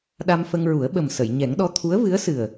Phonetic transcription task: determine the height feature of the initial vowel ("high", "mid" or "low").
low